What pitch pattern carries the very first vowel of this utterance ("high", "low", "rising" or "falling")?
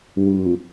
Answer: low